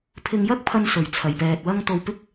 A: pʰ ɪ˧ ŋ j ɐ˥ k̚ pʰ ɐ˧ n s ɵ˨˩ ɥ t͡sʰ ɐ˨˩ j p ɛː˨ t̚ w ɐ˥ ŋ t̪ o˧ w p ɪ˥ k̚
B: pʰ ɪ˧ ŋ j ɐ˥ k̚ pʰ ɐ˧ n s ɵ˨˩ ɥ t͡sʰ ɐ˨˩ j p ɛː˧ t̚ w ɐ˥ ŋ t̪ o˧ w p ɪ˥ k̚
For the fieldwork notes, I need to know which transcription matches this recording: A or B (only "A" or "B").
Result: A